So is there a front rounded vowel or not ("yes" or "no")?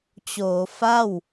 no